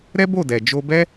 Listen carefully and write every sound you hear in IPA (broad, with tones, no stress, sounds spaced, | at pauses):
ɾ ɛ˦ b o˦˨ d ɛ˨ d͡ʒ o˧ b ɛ˦